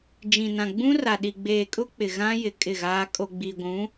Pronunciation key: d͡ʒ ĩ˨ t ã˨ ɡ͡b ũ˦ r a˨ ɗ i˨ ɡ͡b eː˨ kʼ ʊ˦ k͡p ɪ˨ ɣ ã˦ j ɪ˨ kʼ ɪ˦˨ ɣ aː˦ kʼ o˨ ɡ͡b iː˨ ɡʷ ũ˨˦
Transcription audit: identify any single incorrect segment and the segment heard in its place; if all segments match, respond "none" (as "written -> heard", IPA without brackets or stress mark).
t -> n